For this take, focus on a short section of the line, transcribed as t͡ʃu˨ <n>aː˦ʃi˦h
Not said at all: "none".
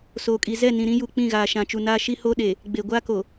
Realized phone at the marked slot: n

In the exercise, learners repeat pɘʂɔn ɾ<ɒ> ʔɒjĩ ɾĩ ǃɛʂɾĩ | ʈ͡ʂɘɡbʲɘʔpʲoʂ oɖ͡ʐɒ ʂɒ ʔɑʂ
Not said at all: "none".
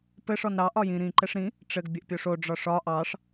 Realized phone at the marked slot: ɑ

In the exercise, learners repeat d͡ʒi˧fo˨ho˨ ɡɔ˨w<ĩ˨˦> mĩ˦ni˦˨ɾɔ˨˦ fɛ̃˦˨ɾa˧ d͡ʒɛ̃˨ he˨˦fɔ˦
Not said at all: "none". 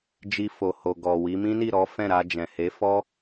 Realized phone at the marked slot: i˨˦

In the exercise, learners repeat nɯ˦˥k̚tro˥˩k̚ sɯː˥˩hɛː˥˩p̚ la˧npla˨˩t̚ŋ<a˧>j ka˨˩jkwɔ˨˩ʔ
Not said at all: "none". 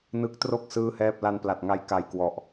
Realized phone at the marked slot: a˧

